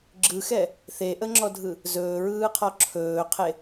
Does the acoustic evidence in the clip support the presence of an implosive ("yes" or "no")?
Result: no